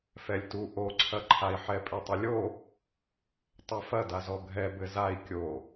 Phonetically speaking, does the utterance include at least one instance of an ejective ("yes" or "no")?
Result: yes